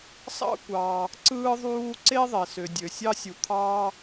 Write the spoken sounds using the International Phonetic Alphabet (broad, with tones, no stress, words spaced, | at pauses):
sɑ̰˥ kʷɑː˩ | ǀɯː˥ðˤuː˥ ǀe˥ ðˤe˩sø˩ dʲø˩sʲɑ˥sʲu˩ t̪ʰɑː˥